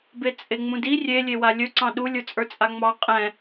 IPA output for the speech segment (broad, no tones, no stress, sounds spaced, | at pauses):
b e t͡sʼ e ŋ͡m ũ d i rʲ e lʲ e w a lʲ ɵ ǀ ɑ̃ ɗ u lʲ ə˞ t͡sʼ ə˞ t͡sʼ a ŋ͡m ɑ qʼ ɛ̃